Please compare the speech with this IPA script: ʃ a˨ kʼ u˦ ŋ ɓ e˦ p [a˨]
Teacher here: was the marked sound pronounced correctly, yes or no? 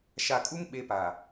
yes